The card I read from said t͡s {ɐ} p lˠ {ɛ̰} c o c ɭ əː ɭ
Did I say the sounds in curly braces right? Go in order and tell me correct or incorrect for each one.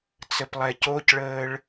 incorrect, incorrect

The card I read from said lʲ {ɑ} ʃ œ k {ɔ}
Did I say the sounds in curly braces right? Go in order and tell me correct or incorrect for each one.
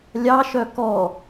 correct, correct

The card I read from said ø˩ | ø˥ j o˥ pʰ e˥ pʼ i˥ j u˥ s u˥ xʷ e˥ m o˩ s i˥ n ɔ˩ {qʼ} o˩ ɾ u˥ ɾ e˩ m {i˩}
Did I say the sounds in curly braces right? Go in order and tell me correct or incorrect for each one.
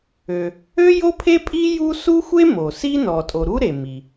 incorrect, correct

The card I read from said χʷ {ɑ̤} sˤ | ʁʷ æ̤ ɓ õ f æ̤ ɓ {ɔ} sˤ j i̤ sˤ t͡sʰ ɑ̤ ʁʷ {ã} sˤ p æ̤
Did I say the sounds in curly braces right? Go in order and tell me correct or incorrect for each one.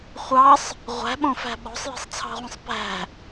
incorrect, incorrect, incorrect

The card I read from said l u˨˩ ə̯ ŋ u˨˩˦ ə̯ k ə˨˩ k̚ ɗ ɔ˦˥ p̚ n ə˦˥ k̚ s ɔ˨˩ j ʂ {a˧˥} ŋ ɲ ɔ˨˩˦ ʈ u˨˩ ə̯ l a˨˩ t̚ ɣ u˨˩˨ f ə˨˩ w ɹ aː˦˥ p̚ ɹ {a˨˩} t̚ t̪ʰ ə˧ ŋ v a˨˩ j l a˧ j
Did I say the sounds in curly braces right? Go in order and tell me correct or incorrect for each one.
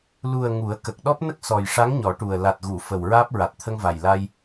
correct, correct

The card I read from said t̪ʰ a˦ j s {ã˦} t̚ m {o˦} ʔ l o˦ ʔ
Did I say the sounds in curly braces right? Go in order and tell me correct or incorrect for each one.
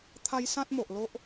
correct, incorrect

